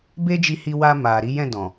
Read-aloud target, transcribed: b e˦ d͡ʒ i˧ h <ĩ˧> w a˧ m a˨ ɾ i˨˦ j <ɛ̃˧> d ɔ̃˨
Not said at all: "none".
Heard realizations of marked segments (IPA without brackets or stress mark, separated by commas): i˧, ɛ̃˦˨